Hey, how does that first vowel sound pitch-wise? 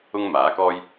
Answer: high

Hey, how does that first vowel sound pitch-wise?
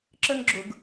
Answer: high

